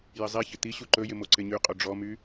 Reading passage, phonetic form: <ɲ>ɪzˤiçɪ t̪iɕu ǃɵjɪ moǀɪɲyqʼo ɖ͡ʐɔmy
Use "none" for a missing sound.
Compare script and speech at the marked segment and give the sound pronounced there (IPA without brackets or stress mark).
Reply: j